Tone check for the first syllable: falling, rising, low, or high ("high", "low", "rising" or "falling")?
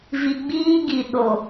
low